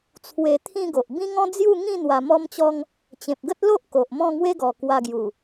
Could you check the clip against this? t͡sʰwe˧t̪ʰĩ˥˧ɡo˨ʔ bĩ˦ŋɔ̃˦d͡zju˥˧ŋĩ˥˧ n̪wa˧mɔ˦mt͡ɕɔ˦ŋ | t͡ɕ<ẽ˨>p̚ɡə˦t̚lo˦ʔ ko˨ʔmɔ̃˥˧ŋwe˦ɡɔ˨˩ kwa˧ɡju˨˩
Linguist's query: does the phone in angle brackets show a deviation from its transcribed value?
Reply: no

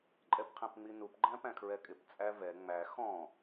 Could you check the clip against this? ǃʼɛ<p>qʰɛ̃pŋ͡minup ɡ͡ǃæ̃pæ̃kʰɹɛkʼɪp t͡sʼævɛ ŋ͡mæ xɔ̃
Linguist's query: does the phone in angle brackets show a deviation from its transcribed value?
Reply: no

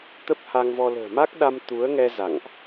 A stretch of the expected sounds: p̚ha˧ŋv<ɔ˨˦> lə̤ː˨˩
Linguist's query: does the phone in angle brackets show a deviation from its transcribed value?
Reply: yes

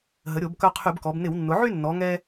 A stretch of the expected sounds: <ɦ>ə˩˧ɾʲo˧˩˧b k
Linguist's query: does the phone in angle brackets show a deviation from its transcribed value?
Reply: no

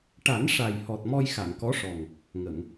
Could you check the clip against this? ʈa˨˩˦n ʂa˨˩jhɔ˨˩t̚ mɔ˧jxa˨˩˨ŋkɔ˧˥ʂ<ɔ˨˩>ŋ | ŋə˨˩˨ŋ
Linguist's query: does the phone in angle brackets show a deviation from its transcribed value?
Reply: no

